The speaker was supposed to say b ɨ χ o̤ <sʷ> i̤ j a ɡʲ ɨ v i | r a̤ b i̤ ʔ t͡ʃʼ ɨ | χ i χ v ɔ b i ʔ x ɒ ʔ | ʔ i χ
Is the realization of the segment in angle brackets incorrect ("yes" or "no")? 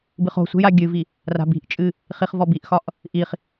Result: no